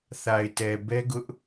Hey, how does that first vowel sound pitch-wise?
low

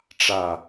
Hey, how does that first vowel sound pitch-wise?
low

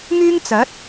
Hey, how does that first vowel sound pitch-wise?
high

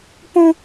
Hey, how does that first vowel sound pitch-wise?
high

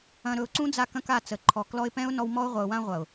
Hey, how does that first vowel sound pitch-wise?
low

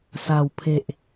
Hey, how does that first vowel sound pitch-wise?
low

